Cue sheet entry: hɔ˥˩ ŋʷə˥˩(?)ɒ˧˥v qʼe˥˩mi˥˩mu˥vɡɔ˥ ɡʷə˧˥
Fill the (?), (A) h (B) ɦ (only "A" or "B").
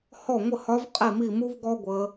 A